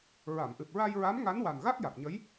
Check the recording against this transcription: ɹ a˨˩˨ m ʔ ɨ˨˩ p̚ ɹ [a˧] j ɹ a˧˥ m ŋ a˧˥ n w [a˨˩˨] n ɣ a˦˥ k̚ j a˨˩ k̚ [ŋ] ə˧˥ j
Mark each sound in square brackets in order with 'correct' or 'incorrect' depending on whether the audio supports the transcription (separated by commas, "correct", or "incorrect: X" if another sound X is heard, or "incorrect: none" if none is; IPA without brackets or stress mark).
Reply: correct, incorrect: a˨˩, incorrect: ɲ